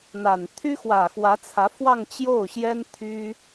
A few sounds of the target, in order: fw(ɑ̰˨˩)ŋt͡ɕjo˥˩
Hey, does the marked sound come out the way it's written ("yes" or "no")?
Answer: no